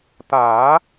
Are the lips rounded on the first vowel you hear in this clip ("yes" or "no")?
no